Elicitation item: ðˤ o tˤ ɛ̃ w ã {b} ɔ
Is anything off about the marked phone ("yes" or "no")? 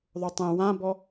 no